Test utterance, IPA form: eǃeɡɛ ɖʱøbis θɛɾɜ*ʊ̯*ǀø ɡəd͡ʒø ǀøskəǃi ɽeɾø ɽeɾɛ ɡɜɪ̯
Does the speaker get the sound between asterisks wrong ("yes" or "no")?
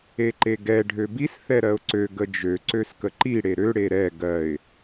no